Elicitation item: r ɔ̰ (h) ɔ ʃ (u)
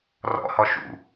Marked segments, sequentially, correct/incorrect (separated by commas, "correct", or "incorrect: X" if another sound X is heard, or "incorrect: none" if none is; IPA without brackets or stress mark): correct, incorrect: ṵ